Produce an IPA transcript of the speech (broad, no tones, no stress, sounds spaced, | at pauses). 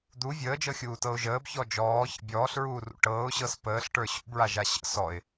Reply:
d̪ u vʲ əː d͡ʒ ɤ xʲ uː t ɤ ʊ̯ ʒ əː b ç ɔ d͡ʒ ɔː ç ə̰ bʲ ɔː ɬ ɹ uː r ṵ ʈ ɤː ʊ̯ ɕ ɤ s p əː ɬ ʈ ə˞ ɕ ṵ b ɹ a ʒ a ɕ ə̰ s ɔ ɪ̯